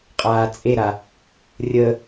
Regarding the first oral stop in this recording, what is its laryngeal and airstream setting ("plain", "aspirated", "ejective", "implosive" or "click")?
ejective